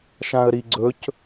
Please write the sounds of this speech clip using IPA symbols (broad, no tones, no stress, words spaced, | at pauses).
ʃãə̯ɾiɡ͡ǀɵc